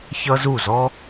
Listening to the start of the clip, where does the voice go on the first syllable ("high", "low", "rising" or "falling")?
high